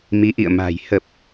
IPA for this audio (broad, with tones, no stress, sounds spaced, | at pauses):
m i˨˦ ʔ ḭ˧˨ ə̯ m a̤˨˩ j h ə˨˩ p̚